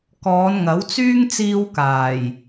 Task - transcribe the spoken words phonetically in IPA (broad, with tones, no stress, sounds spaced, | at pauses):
k ɔː˨˧ n ŋ ɐ˨˥ w t͡s yː˥ ŋ t͡s iː˧ w k aː˨˩ j